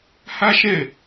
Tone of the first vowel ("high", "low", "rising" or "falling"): high